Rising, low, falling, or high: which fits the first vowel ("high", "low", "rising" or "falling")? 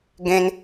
high